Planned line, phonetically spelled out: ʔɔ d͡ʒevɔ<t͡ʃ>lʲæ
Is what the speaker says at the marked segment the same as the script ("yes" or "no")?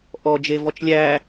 yes